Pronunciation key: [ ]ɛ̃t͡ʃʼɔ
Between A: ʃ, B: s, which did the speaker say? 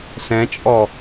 B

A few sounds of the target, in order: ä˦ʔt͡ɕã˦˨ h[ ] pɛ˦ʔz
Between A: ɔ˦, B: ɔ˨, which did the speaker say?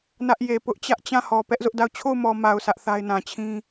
B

